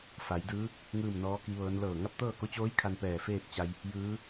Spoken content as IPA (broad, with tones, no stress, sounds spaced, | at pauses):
f a˩˧ j d ɯː˧˥ | ŋ ɯː˥˨ m n ɔː˧˥ k i˧˥ ʋ ɤː˧˥ n l ɤː˧˩ ŋ a˥˨ p̚ t̪ ɤː˥˨ k o˧˥ t͡ɕ oː˧˥ j kʰ a˧ n p ɛː˧˩ f eː˥˨ p̚ t͡ɕ a˧ j | j ɯː˧˥